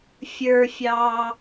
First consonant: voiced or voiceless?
voiceless